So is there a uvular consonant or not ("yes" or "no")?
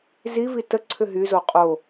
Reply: yes